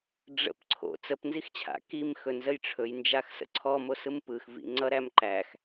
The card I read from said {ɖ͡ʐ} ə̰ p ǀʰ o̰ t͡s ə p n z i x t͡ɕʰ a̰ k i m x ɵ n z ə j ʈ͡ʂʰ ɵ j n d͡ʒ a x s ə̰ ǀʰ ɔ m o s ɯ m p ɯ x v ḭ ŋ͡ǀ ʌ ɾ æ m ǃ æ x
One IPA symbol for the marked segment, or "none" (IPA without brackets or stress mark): ɖ͡ʐ